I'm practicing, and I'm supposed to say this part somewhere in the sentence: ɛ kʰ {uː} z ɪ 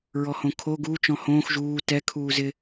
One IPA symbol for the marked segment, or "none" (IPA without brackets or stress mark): uː